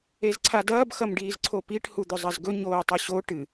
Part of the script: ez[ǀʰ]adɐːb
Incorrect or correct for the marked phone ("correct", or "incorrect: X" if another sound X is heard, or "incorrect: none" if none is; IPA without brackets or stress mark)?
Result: correct